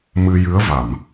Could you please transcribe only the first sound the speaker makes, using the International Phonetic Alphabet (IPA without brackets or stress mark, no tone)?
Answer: m